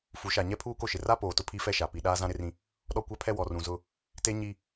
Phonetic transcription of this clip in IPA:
f u˨˦ ʃ a˨ ɲ ɛ˦ pʰ uː˦ k o˦ ʃ ɪ˨ r a˦ p oː˨ t ʊ˦ pʰ i˦ f ɛ˦ ʃ a˨ p i˨ ɗ aː˦ z ã˦ ɾ ɪ˦ r ĩ˦ | ɗ ɔ˦ kʷ a˦ pʰ ɛ˦ w ɔ˨ r ũ˨ z ʊ˦ | t e˦ ɲ i˦

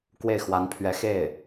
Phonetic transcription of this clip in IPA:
k w e˥˩ ɪ̯ x w a˧˥ n pʰ ɥ ɛ˧˥ x e˥˩ ɪ̯

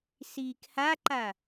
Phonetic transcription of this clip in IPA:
s iː k h a ǃ a

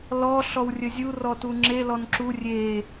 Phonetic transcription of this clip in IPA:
l ɔ ɬ ɔ w rʲ ə zʲ u r ɔ t u ŋ͡ǁ e l ɔ n ǁ u rʲ e

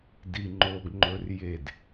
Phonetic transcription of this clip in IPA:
d i ŋ͡ǃ o ɡ ŋ͡ǃ ɵ r j e d

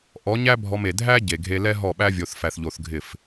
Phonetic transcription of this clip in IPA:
ʔ ɔ˨˦ ɲ æ˦ bʱ ɔ˧ m e˨ dʱ æ˦ ɟ e˨ ɡʱ e˧ l ɛ˦ ɦ ɔ˦˨ ɓ æ˦ vʲ o˧ θ f æ˧ θ ʎ o˧ θ ɡʱ ɪ˦˨ f

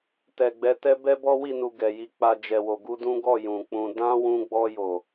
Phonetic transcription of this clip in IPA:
t ɛ˨ ɡ͡b ɛ˨˦ t ɛ˦ b ɛ˦ b ɔ˦ w i˦˨ n u˨ ɡ ɛ˨ j i˧ k͡p a˧ d͡ʒ ɛ˨ w o˨ ɡ u˧ d ũ˦ ɡ ɔ˦˨ j ũ˨ k͡p ũ˧ d ã˦ w ũ˧ ɡ͡b ɔ˧ j o˨

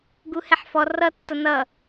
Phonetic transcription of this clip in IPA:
ɡ u h ɛ ħ f ɔ r ʌ tː ʌ n ʌ

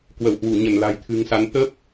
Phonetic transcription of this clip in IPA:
k w ə˧˩ w h w u˧˩ ɲ ə˧˩ n l a̤˨˩ j t̪ʰ ɨ̤˨˩ ŋ s a˨˦ n t̪ ə˦˥ p̚

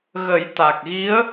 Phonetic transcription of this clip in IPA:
ɣ ə˨˩˦ j t̪ a˨˩ k̚ ɣ i˧˥ ə̯

